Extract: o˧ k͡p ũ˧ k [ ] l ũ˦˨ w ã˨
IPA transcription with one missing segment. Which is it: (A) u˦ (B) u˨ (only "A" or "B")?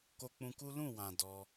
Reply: A